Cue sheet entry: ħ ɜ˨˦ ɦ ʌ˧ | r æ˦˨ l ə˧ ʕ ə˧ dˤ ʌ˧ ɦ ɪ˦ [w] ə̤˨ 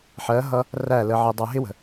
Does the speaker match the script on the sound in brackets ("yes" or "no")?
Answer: yes